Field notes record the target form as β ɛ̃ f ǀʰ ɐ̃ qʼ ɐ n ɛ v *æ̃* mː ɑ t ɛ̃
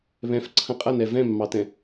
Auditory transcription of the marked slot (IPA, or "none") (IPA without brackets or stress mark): ɛ̃